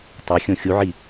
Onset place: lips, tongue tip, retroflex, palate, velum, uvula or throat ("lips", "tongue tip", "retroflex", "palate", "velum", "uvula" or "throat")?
tongue tip